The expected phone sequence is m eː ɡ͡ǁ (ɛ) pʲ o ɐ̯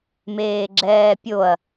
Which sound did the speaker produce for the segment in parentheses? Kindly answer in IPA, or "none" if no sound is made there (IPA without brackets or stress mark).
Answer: ɛː